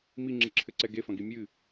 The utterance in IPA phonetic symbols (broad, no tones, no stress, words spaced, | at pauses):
miŋ͡ǁɨǁʰɘǀɛ ɡefɐ̃ɡi mʲɨ